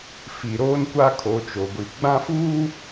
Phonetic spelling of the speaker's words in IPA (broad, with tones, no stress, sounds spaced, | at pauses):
f i˨ ɾ oː˦ n kʷ a˦ kʰ o˨˦ t͡ʃ o˨ ɡʷ i˨ ɡ͡b ã˦ f uː˦